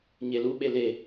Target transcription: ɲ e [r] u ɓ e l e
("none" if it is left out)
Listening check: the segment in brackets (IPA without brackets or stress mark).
l